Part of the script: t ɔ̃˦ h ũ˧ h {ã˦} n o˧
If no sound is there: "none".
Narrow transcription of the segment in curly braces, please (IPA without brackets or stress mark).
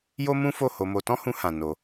ã˨